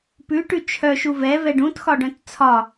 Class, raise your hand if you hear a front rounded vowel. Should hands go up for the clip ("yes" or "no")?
yes